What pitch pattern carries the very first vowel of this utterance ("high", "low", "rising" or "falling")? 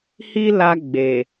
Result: high